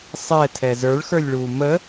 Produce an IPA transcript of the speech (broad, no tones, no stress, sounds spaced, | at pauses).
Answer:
sˤ ɛ tʰ ɛ z ə˞ ɭ x ə˞ lʲ ɭ uː m ə